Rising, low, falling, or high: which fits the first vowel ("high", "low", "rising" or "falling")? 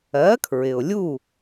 rising